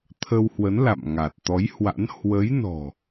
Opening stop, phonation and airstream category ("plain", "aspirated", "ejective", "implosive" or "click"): aspirated